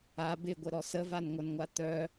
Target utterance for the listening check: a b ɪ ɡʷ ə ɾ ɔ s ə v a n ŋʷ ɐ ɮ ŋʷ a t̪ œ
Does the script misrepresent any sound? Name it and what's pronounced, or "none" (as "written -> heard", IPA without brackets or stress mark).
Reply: ɮ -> n